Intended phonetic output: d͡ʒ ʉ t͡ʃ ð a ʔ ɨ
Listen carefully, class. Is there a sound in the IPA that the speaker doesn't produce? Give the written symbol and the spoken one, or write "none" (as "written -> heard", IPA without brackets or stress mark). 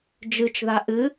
ʉ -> ɨ